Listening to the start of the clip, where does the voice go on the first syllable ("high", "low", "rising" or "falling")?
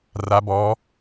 rising